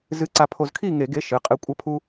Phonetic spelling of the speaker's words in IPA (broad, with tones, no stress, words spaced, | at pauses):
zɨ˨˥ǀa˧ pʰo˧zkʰi˥˨ŋe˧˩˧ɡe˨˥ ʃɨ˩˧˩ qʼɨ˧˩ kʷʼɐ˨˥pʰu˧